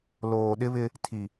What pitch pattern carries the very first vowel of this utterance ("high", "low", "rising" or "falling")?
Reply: low